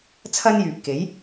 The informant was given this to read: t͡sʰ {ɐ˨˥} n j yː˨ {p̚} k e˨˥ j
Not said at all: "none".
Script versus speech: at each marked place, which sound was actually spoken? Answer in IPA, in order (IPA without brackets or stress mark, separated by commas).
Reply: ɐ˥, p̚